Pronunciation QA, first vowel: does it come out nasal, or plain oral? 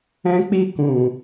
nasal